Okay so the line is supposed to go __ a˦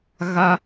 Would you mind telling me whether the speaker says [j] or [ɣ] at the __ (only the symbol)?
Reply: ɣ